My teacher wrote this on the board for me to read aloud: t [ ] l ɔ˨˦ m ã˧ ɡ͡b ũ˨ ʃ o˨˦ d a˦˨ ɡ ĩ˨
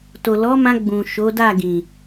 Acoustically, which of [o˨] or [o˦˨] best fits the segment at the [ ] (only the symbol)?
o˨